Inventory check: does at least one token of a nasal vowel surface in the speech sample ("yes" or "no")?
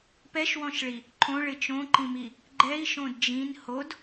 yes